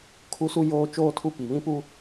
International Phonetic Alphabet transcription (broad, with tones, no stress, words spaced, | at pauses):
kʰu˦su˦ joː˦t͡ʃoː˦tʰu˦ pi˨βĩ˦pu˦